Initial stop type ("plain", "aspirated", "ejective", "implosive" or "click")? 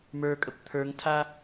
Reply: ejective